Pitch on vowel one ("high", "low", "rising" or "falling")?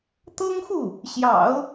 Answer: high